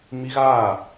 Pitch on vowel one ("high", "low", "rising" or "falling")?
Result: high